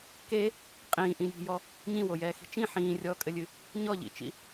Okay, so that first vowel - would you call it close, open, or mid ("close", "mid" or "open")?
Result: mid